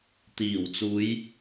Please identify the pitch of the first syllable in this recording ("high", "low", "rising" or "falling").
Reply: low